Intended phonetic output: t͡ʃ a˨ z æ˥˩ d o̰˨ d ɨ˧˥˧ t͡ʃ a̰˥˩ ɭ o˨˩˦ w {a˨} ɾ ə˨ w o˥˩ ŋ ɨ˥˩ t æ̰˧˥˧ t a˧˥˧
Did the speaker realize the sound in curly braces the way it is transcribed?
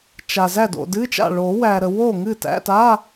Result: no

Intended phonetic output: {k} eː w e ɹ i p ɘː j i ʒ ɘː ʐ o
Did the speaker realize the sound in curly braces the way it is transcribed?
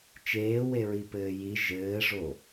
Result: no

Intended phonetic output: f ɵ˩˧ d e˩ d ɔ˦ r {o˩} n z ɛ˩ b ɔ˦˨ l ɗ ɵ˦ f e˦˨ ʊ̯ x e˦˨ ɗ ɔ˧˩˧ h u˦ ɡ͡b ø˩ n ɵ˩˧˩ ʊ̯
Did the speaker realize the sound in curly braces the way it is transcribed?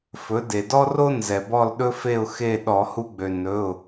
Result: no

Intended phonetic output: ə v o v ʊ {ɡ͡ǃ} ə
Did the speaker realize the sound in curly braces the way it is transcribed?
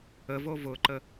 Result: no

